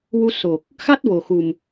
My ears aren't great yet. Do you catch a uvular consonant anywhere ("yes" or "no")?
no